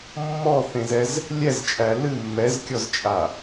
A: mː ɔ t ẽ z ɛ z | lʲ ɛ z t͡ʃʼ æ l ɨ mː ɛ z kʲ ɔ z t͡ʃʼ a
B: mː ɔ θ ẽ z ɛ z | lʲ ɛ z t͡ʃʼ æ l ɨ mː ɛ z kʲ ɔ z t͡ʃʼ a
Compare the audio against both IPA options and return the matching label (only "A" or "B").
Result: B